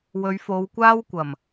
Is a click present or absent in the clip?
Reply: absent